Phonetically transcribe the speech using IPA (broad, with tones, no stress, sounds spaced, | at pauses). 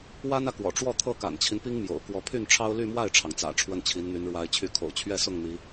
w a˥ n ä˨ k w ɔ̰˨˩ ʈ͡ʂ w ɔ˥˩ t̪ʰ ɤ˥ k a̰˨˩ n t͡ɕʰ i˦ n p i˥ ŋ m j o̰˨˩ ʊ̯ k w ɔ˧˥ pʰ y˥˩ n ʈ͡ʂʰ ɑ˥ ʊ̯ l y˥˧ m w a˥˩ ɪ̯ ʈ͡ʂʰ ɑ˩ ŋ t͡s ä̰˨˩ ʈ͡ʂʰ w ə˥˩ n t͡ɕʰ i˧˥ n n̪ y˧˥ n ɻ w a˧˥ ɪ̯ t͡ɕʰ y˧˥ kʰ o̰˨˩ ʊ̯ t͡ɕʰ ɥ ɛ˥˧ s ʊ˥˩ ŋ n̪ i˧˥